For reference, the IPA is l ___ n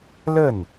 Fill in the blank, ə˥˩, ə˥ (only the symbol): ə˥˩